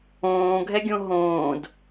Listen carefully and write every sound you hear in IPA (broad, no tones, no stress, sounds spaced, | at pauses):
õː ɡʱ ɛ ɡʲ õ ɦ õː d